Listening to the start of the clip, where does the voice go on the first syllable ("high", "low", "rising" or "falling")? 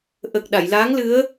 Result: low